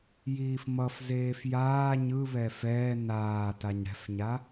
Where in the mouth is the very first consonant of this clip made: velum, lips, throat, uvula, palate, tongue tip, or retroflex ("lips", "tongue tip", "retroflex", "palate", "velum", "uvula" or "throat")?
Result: palate